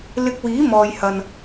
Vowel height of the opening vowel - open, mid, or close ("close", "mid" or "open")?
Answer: close